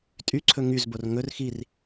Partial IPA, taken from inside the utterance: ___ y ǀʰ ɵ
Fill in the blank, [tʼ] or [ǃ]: tʼ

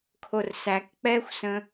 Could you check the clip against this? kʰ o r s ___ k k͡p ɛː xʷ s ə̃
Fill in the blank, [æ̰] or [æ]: æ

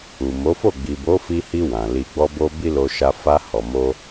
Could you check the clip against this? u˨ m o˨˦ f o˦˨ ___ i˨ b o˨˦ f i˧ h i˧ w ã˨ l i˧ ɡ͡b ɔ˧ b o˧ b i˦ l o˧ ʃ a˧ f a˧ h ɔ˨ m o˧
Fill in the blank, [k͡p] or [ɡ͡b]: ɡ͡b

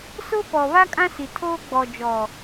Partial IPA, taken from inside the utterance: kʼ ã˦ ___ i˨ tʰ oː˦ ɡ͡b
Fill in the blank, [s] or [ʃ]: s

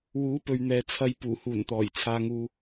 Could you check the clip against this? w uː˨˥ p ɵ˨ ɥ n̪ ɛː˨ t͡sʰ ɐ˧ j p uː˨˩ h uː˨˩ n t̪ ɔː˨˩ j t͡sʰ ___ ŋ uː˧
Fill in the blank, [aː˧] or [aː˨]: aː˧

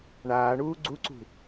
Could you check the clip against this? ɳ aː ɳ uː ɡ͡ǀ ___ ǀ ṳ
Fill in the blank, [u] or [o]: u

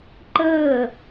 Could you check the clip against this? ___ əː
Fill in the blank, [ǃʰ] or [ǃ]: ǃ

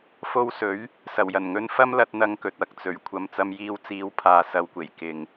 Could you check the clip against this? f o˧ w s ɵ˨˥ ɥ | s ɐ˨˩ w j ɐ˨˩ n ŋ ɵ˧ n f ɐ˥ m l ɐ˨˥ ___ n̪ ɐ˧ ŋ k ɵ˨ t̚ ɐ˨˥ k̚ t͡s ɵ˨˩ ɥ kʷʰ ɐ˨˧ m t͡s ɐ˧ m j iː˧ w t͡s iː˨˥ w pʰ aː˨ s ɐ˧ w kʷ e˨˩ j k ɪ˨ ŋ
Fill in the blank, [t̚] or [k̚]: t̚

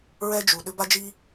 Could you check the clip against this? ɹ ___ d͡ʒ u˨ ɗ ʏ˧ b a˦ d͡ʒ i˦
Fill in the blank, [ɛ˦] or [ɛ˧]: ɛ˦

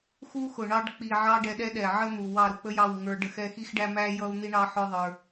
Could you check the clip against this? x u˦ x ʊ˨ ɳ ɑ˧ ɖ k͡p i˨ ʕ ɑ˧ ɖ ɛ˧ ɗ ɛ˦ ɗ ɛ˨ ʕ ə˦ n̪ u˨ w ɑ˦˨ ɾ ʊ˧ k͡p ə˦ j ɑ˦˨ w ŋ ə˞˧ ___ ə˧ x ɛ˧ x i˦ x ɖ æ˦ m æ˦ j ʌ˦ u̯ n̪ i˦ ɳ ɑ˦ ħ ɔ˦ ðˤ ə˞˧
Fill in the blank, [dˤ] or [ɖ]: ɖ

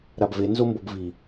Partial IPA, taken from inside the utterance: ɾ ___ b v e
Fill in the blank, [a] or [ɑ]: a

